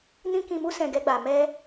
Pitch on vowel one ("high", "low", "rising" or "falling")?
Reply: high